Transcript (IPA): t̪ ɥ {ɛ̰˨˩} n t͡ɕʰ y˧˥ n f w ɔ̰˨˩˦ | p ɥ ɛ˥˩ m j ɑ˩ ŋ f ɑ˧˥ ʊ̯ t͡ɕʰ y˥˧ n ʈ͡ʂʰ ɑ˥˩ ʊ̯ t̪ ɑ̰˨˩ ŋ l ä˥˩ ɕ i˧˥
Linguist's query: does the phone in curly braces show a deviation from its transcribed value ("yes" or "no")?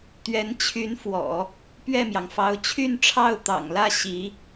yes